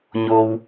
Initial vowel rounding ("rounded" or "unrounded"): rounded